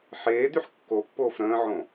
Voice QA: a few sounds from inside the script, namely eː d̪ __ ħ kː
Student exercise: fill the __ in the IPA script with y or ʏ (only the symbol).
y